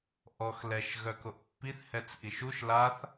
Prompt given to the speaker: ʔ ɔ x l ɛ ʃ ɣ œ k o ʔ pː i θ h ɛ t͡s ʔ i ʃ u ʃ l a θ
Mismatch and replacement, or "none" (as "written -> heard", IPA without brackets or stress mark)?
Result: none